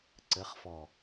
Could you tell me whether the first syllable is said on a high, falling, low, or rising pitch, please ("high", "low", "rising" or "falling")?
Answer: rising